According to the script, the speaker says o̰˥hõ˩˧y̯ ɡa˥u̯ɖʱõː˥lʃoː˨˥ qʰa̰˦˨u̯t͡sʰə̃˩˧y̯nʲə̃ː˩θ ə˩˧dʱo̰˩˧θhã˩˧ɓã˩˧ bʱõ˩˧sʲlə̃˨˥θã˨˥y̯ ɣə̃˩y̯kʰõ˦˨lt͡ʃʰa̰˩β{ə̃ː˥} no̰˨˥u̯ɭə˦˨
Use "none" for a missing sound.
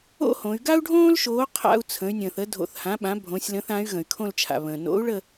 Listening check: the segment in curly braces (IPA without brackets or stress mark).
ə̃ː˩